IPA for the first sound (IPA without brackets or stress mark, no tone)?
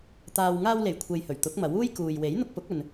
t̪